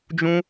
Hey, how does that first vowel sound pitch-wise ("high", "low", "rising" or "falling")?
high